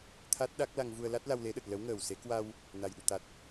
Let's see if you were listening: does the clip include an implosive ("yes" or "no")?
yes